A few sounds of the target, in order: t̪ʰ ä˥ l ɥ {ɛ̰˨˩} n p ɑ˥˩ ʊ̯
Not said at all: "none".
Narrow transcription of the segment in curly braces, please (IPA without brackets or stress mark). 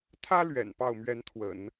ɛ̰˨˩